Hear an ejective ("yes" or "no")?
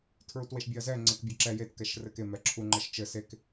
no